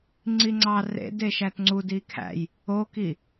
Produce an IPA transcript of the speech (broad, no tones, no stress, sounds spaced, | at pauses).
ŋ͡ǀ i ŋ͡ǀ ɑ r ḛ d e ʃ æ t ŋ͡ǀ u d i kʰ æ̰ j | o k i